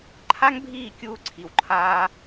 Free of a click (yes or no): no